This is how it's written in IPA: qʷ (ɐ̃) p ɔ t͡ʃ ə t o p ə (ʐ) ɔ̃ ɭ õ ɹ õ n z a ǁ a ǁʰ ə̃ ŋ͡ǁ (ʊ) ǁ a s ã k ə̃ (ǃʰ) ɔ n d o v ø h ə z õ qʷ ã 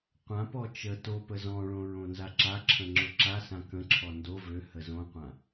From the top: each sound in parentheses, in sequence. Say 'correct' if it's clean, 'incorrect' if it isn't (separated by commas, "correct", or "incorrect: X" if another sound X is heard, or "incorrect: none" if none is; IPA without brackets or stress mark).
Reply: incorrect: ã, incorrect: z, correct, incorrect: ǁʰ